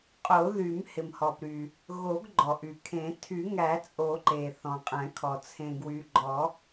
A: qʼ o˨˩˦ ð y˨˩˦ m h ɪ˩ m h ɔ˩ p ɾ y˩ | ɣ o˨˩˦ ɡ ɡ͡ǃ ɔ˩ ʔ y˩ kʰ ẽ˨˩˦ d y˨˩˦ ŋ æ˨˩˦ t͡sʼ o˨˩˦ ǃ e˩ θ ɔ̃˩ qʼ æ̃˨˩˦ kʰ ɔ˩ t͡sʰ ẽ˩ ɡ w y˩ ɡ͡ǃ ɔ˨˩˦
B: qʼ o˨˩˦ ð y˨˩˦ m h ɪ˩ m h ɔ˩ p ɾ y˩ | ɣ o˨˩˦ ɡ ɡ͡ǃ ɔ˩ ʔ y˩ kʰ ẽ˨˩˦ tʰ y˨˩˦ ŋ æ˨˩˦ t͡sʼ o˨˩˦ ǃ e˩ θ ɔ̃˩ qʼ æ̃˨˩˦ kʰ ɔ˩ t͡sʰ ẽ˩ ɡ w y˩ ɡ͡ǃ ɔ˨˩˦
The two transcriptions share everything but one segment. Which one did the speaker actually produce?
B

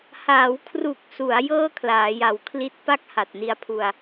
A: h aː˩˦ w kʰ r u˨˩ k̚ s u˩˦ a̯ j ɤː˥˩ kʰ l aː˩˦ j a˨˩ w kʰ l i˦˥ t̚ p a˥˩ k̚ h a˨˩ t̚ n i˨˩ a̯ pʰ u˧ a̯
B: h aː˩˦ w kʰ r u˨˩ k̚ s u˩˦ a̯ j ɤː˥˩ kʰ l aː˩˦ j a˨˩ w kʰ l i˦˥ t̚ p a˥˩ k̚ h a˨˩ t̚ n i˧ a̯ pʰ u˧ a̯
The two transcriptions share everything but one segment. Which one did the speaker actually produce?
B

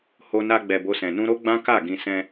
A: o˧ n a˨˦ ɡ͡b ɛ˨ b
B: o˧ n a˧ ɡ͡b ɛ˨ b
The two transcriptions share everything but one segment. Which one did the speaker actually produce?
B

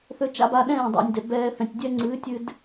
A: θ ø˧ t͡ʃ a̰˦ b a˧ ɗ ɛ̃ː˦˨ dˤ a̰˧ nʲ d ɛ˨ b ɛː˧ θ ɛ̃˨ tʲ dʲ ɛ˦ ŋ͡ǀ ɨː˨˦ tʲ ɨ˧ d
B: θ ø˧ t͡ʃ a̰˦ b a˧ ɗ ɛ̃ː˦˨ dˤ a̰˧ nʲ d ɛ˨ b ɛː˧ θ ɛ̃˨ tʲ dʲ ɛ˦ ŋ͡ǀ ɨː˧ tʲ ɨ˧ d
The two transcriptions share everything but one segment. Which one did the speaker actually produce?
A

